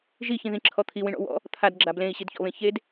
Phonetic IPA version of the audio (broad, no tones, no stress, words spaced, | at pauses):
ʒiçĩðĩǁʰɔ t̪ʰiwĩɳɔ̰ wɔ̰ | t̪ʰadɡ͡ǁa blẽi̯ɕidçɔ̰βẽ çed